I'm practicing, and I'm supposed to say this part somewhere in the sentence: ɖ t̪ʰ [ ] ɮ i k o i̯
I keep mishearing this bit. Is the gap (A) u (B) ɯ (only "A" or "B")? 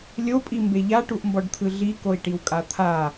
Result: B